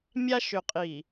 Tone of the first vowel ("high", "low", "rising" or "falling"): high